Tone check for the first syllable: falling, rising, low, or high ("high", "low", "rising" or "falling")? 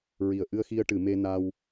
low